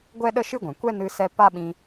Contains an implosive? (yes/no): yes